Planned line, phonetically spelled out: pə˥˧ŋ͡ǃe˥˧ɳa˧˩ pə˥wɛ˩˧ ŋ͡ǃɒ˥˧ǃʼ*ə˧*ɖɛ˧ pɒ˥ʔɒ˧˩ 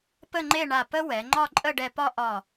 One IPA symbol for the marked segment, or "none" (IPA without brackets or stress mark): ə˥˧